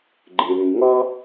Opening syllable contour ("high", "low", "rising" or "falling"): low